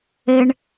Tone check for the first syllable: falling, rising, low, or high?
high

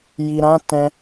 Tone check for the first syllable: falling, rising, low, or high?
low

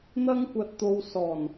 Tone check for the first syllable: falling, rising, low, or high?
high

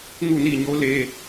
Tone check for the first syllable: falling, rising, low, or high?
falling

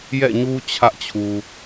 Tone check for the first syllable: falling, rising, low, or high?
falling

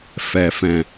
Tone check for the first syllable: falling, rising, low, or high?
low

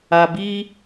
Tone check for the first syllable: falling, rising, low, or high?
low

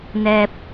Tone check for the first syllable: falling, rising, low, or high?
low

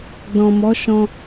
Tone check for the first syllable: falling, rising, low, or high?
low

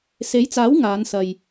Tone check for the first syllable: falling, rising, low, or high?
rising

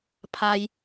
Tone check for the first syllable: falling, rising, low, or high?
low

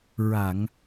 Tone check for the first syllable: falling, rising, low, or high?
low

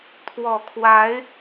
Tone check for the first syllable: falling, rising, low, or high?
low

